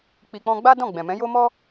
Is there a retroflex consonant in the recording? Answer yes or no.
no